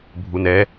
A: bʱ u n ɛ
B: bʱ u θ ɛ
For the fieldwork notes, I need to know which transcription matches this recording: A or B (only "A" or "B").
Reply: A